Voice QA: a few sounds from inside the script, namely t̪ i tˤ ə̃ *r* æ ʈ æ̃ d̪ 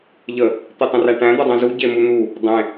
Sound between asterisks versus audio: correct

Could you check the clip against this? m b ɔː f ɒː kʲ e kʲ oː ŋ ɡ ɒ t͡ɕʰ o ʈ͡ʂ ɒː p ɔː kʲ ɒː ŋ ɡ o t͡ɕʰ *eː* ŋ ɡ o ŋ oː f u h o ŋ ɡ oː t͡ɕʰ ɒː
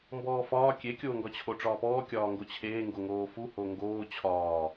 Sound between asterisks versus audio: correct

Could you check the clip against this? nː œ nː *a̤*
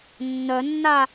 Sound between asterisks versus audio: incorrect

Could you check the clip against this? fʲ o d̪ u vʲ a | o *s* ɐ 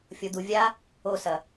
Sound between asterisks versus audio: correct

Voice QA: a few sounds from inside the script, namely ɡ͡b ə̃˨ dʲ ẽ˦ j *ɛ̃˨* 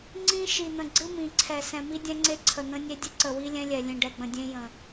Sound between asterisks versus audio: incorrect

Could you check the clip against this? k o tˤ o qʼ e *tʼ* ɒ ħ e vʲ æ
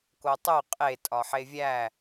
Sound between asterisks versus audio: correct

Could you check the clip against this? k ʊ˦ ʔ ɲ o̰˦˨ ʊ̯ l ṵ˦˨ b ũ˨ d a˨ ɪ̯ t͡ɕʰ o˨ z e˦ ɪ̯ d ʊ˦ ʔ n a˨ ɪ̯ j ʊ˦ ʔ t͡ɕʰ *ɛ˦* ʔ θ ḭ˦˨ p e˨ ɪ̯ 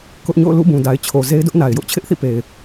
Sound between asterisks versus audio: incorrect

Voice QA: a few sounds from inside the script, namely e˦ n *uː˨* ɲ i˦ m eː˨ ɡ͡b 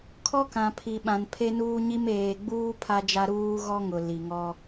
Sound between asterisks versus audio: incorrect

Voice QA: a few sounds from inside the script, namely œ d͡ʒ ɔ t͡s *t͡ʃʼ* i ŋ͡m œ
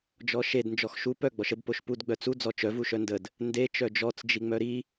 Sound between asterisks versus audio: incorrect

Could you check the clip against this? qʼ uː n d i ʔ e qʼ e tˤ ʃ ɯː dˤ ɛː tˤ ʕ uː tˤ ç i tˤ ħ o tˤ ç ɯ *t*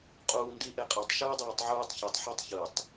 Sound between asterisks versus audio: incorrect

